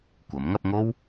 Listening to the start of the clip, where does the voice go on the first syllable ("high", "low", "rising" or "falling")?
rising